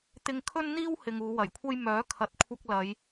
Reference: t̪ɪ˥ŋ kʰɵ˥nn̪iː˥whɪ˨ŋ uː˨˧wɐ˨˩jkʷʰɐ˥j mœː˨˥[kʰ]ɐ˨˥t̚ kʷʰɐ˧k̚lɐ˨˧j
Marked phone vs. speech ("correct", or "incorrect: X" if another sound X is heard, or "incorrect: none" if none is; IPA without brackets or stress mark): correct